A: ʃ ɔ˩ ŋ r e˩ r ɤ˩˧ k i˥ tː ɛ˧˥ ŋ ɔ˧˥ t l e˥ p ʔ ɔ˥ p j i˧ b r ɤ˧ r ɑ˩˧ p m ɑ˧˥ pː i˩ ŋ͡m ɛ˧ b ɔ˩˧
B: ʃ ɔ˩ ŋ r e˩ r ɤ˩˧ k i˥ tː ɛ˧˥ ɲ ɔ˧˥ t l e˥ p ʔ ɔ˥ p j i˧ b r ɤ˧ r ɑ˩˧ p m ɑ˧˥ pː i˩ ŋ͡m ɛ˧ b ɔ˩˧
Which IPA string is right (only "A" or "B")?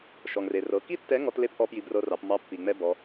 A